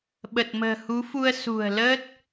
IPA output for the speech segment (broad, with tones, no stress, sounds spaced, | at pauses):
ɓ ə˨˩ t̚ m ə̤ː˨˩ h u˨˦ f u˧ ə̯ s ṳ˨˩ ə̯ l əː˦˥ t̚